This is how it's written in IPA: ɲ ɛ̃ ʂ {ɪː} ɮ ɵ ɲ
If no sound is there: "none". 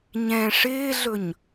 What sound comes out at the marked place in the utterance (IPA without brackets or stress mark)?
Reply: ɪː